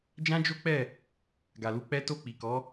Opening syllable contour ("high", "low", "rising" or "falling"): high